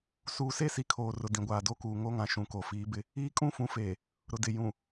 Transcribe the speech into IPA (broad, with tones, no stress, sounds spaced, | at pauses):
s uː˨ s e˦ s i˨ kʰ oː˨ r ʊ˨ d ĩ˨ ɡʷ aː˨ d o˦ k uː˨ ŋ o˦ ŋ ã˨ ʃ ũ˨ k o˨ f iː˨˦ b ɪ˦ | iː˦ kʼ ũ˦ f ũ˨˦ f eː˨ | ɾ ʊ˨ d ɪ˨ j ũ˨